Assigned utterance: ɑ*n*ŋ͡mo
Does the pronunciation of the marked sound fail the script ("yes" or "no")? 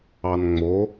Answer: no